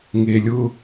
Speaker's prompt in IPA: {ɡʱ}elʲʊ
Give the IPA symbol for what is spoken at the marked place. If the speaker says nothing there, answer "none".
ŋ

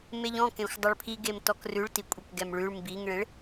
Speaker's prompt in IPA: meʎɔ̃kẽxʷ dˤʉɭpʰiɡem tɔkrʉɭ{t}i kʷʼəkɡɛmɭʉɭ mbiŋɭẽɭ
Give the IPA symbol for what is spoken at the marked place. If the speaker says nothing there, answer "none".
t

